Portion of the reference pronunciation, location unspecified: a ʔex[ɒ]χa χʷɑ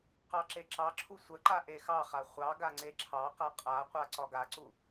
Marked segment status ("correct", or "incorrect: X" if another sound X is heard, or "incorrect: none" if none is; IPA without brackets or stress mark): incorrect: ɑ